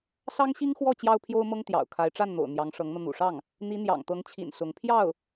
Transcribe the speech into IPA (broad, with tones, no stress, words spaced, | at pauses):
sɑ˥ŋɕi˥ŋxwɔ˥˩ t͡ɕjɑ˥ʊ̯pʰjo˥ʊ̯mɤ˥ŋ t̪jɑ̰˨˩ʊ̯kʰa˧˥ɪ̯ ʈ͡ʂa˥˩nn̪o̰˨˩ʊ̯ n̪jɑ˧˥ŋʂɤ˧˥ŋn̪ɤ˧ n̪ṵ˨˩ʂɑ˥˩ŋ | n̪i˧˥n̪jɑ̰˨˩ŋt̪ɤ˧˥ŋt͡ɕʰḭ˨˩n sʊ˧˥ŋ pʰjɑ˥˩ʊ̯